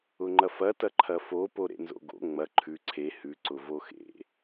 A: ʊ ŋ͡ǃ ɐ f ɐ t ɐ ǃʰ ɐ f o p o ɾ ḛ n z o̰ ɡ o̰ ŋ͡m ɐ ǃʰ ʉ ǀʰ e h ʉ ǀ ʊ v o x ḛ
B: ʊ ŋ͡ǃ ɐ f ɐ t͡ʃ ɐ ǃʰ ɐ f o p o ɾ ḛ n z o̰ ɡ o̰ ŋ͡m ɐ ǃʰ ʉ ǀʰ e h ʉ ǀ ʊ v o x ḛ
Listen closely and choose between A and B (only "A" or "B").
A